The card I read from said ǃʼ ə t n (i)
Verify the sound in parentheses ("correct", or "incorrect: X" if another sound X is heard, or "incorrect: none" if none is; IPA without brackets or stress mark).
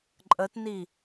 correct